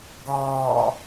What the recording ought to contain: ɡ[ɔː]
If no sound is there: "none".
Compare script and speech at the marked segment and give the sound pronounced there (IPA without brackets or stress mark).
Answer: ɔː